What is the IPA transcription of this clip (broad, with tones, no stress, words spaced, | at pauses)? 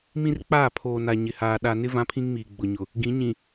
mĩ˦r k͡paː˦˨pʰoː˨na˨ ɲɪ˨haː˨ ɗa˨nɪ˦ vã˦pʰĩ˦ŋmiː˨ ɡ͡bʊ˨ɲʊ˨ | ɡĩ˨˦ɲĩ˨